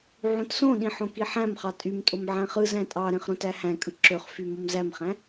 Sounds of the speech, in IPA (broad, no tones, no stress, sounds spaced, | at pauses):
ʕ ũ t s õ ɗ ĩ ħ õ k i ħ æ̃ m χ ɑ tʼ y m tʼ o m ʕ æ̃ χ ɯ z æ̃ tʼ ɑ ɾ ẽ χ ɾ õ t æ h æ̃ kʼ ɯ ǁ ø χ f y m o m z æ m χ æ̃